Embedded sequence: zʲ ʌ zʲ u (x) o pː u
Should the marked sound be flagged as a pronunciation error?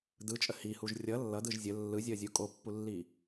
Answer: yes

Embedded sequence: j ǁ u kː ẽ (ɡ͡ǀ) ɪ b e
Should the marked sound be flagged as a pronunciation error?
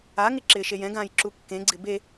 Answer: no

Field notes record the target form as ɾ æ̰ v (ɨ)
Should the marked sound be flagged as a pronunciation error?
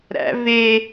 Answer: yes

